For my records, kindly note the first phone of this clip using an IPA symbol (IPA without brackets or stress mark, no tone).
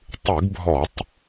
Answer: tˤ